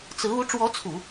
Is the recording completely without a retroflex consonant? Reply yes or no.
no